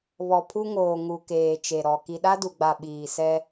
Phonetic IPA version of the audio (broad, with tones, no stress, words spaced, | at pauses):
βɔ˨pʰu˦ŋoː˨ ŋu˨keː˨ t͡ʃe˨ɾɔ˨ ki˨ɗa˦du˨ɡ͡ba˨ ɓiː˨sɛ˦